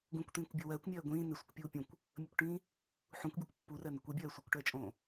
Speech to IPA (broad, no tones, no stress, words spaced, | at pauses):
ɡũkʷt̪ĩːkʷ bʲo wɜːkʷmʲɜː ɡʷĩː nɪsʷəkʷpʲuː pʲũkʷ | mʲəkʷʈĩː | ħũkʷbʲukʷ pːurɜnəkʷ ɘbʲɜː sʷɘkʷʈɜt͡ʃʼõː